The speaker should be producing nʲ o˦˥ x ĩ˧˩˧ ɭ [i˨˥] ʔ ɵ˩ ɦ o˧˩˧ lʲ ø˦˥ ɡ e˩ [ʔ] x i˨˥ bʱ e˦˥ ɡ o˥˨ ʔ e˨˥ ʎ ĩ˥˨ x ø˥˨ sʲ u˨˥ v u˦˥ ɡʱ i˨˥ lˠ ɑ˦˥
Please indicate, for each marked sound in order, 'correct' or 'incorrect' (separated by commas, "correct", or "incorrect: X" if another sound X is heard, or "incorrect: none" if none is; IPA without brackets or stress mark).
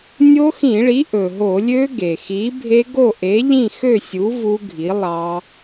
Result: correct, incorrect: none